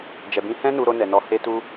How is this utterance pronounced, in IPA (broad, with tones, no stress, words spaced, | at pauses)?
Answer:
d͡ʒɛ˨bĩ˧hɛ̃˦ nu˧ɾo˧nɛ˨nɔ˨˦ he˧tu˧